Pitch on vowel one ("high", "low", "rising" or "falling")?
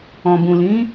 low